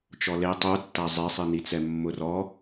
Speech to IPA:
t͡ʃ ɔ l e tˤ u tː a zˤ ɛ sˤ i n i t͡s ɛ mː ʊ r ɔ

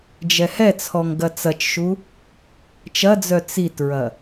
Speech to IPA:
d͡ʒ ɛ h ɛ t͡sʰ ɔ ŋ ɡ ɐ t͡s ɐ t͡ʃ ʃ u | t͡ʃ ɐ d͡z œ t͡s i t ɹ ɐ

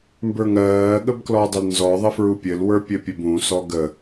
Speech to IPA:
m b ə˞ ŋ ɜː ɠ ə b k l ɔ dˤ ə l n z ɔ ðˤ ɘ f ɹ u pʲ ɘ l w ə˞ pʲ ɘ pʲ ɘ b ũ s ɔ ɡ ə

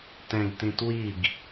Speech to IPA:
t ɛ̃ ɡ t ĩ t w i ɡ

